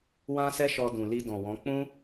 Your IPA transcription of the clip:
wã˦sɛ˦ʃɔ˧ dũ˨li˧dɔ̃˨wɔ̃˨˦ k͡pũ˦

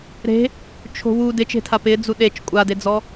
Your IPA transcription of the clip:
ɾe̤ | t͡ʃʰo̤wu dɪt͡ʃe̤tʰa pɪd͡zu ɗet͡ʃ kʷʼaded͡zɔ

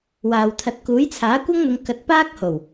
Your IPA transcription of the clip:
waː˨w t̪ʰɐ˨t̚kuː˨˥jt͡sʰaː˨˥ kʷɐ˥ŋn̪ʊ˨˧ŋ kɐ˨˥t̚paː˥k̚ho˨˩w

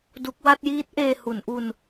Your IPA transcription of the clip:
du˦˥k̚ wa˥˩t̚jiː˦˥t̚ ʔeː˧hu˩˦nʔu˧n

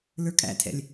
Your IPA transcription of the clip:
lə˞kʼæ̰tʰɛ̰lʲ

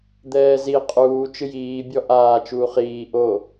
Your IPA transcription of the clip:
d̪ɛːzi qʼuː t͡ʃɨjiː bʲɔʔaː t͡ʃuːχiː ʔo

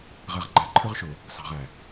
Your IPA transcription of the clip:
ʁæ˨ʁɡ͡ǃæ˨ǃʰə˞˦ʁʃʊː˨ | sɑ̤˨ʁæ˨

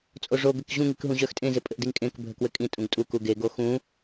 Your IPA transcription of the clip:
t͡sʼoʐo ɡɘkʑũŋik ɦũʑœxtʼẽzɪ pʼɘʔdiŋkʼẽk bʱəkwɘkʼĩ tʼũɡtʼuku ɡeɡo xũ

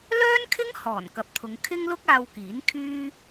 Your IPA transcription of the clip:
lœː˥nkʰɪ˥ŋ hɔː˨˩nkɐ˨p̚t̪ʰʊ˨˧ŋ kʰɪ˥ŋlʊ˥k̚aː˧w kiː˨˥n kʰyː˥

